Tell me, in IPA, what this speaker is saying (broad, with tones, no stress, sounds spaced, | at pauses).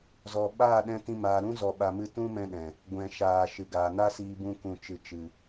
z ɔ˨ ɓ aː˦˨ ɗ ɛ̃˧ t ĩ˧ m aː˨ ɾ ũ˦ z ɔ˨ ɓ a˨ m ɨ˧ t ũ˦ m ɛ̃˦ ɗ ɛ̃˨ | ɡʷ ɛ̃˨ ʃ aː˨ ʃ ɨ˨ ɡ aː˨ n a˦ s iː˧ b ũ˧ k ũ˨ t͡ʃ ɨ˨ t͡ʃ ɨ˨